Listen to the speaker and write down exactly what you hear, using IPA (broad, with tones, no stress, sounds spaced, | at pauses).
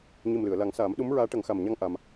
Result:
ɲ i˨˩ m l ɨ˨˩˨ ə̯ l a˨˩˦ ŋ s aː˨˩˦ m ɗ u˧˥ m ɹ aː˧˥ ʈ ə˨˩˦ ŋ x a˨˩ m ɲ a˧˥ ŋ ʔ a˧ m